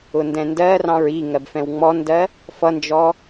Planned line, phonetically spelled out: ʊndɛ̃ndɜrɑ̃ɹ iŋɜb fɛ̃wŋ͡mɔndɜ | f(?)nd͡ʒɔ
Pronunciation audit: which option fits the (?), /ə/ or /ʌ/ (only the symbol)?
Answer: ʌ